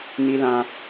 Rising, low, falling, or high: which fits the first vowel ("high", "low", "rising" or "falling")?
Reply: high